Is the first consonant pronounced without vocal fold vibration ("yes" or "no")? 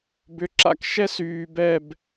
no